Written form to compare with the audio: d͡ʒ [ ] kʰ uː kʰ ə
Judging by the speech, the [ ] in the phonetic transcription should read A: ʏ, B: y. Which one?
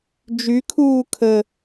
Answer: B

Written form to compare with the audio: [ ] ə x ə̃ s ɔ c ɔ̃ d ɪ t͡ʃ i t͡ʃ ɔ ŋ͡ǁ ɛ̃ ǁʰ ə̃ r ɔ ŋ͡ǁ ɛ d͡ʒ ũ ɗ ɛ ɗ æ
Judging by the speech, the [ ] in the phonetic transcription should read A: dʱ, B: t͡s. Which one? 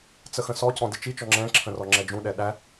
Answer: B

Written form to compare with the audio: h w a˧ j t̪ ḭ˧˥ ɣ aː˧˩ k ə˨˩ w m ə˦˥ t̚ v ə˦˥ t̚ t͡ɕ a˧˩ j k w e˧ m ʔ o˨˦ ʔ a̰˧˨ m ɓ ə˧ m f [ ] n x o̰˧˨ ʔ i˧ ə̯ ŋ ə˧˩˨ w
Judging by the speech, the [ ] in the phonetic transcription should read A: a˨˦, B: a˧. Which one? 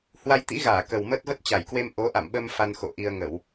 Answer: B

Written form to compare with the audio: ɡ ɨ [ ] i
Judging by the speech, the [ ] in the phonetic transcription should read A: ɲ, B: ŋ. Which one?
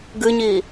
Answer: A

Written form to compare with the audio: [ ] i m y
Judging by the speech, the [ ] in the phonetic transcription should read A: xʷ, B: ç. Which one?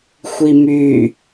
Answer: A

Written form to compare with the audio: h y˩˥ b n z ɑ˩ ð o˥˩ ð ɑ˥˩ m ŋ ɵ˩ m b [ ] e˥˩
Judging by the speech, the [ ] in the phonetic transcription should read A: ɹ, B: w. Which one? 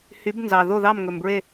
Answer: A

